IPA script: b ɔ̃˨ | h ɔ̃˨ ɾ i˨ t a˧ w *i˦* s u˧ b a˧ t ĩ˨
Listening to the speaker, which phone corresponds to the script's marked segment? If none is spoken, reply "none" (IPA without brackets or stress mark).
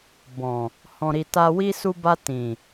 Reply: i˦